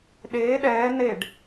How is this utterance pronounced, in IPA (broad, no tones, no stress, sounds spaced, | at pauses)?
ɗ eː ɗ ɛː n e ɖ